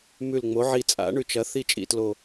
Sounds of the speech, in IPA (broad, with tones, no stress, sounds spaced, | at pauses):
m ʉ˧˩ l ŋ͡m o˩˥ ʕ i˧˩ t͡sʼ a̰˩˥ ɳ ʉ˧˩ t͡ʃ ɐ˩˥ θ i˥˨ t͡ʃʼ ḭ˧˩ t l o˧˩